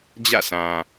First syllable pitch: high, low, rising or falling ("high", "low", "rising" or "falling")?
falling